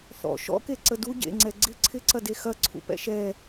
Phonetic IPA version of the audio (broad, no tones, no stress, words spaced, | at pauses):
θɔ̰ ʃɔ̰ke ǀədu ɟḛŋ͡ǀɛ ɡ͡ǀɪ ǀʰɪ ǀɐdexɐǀʰṵ pɛ̰ʃɛ